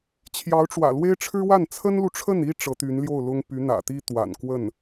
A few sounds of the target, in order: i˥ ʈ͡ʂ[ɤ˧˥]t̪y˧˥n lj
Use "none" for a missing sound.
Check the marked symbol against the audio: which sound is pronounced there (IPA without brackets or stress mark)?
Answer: ɤ˧˥